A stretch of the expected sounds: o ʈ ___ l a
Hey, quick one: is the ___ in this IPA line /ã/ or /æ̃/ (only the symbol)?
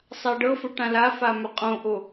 ã